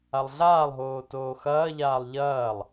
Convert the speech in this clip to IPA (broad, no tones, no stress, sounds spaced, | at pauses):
a lˠ ɮ aː lˠ ɦ oː t oː x ɐː ʎ aː lˠ ʎ ɐː lˠ